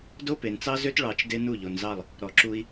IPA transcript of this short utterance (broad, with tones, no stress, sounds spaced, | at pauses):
d o˦ p e˨ n t͡s ɑ˦ z ø˦ t ɭ ɑ˧ t͡ʃ d e˦ n u˦˨ ʎ o˨ n z ɑ˦˨ lˠ | ɾ ɔ˨ ǁ u˧ i̯